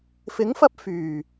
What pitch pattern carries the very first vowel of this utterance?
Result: rising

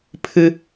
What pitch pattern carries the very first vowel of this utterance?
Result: high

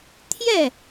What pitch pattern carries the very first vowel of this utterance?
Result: falling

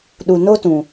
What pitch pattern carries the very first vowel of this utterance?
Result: low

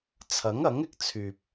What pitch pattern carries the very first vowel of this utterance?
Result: rising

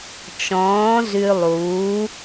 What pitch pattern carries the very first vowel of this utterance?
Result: rising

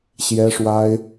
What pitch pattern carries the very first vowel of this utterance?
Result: high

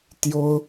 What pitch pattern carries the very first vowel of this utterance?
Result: high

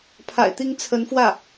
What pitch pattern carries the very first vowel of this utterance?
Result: low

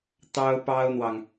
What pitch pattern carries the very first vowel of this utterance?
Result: high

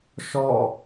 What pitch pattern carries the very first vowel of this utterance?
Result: falling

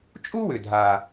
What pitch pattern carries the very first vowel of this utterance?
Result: high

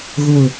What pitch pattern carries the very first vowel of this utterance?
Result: low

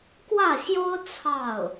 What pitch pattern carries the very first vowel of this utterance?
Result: falling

